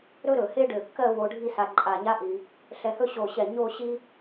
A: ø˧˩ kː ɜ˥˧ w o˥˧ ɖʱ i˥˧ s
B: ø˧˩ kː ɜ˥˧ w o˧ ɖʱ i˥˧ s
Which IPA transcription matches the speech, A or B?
B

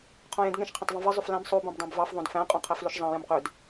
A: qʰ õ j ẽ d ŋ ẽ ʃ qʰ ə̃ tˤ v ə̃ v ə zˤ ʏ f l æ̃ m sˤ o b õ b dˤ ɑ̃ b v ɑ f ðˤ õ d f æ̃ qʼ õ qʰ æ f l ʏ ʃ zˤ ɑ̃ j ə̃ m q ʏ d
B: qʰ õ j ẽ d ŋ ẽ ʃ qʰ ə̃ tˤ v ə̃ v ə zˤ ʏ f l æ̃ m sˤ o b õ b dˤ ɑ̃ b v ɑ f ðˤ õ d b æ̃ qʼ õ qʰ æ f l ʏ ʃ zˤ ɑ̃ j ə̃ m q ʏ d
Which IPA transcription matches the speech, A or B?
A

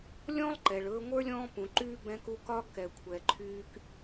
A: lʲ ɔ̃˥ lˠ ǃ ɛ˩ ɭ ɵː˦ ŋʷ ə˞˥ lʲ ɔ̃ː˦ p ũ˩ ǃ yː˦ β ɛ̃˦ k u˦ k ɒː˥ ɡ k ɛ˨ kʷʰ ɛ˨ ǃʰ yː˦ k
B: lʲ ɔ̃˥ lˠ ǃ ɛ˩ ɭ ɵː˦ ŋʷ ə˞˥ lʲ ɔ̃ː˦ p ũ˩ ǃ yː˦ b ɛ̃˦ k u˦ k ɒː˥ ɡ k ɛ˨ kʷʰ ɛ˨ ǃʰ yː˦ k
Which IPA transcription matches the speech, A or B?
B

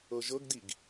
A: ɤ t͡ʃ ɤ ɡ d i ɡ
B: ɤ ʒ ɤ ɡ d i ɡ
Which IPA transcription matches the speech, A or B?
B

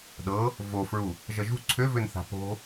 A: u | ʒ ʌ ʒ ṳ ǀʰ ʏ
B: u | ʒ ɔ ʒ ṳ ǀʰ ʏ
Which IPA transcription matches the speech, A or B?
A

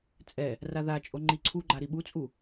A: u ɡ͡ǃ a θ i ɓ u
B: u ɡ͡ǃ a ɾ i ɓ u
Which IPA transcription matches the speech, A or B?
B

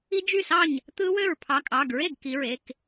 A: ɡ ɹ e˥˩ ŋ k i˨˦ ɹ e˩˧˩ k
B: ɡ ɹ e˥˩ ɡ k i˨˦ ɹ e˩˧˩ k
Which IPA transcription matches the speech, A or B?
B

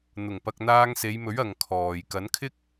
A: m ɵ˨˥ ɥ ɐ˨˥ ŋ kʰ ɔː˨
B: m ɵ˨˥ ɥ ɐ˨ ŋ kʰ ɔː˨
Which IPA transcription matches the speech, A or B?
B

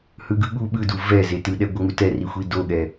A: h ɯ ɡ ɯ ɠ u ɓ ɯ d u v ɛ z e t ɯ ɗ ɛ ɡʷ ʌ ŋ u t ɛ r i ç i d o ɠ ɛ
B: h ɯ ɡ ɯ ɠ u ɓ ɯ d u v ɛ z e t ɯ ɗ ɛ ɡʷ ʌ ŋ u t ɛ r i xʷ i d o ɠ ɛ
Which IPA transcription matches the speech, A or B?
B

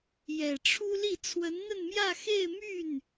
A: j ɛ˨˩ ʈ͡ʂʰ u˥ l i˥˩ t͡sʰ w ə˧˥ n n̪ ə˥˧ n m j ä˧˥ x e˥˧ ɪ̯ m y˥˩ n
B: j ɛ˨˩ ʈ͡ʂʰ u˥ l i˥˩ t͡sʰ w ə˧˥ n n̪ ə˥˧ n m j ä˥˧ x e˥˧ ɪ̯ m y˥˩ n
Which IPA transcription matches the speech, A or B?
B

